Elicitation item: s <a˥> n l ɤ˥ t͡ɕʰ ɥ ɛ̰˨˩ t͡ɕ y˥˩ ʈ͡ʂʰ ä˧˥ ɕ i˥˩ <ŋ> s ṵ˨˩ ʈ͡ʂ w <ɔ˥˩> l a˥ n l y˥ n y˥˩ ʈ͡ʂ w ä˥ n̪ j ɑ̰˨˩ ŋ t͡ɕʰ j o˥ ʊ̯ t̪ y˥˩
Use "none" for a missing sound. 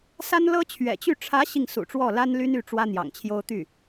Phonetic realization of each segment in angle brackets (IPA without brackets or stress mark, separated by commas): a˥, ŋ, ɔ˥˩